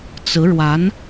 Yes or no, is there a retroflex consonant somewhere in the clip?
yes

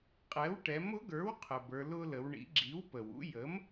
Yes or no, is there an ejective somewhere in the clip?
yes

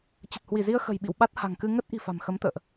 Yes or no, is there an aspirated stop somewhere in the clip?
no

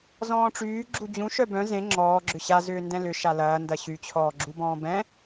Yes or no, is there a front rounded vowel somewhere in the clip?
yes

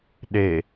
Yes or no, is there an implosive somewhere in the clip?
yes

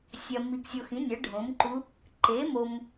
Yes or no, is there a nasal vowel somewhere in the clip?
yes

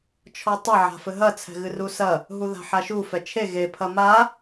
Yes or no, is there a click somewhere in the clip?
no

